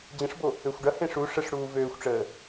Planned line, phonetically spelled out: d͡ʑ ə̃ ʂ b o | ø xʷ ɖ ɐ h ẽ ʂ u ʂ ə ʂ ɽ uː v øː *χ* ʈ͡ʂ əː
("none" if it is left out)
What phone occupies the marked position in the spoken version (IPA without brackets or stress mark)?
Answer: xʷ